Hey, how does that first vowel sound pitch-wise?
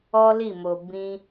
high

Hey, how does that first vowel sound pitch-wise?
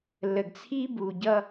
low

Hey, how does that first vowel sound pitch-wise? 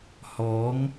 rising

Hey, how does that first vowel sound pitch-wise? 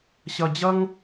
high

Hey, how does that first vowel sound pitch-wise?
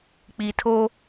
low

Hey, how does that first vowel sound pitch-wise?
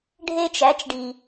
high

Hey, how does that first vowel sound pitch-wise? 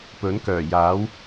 rising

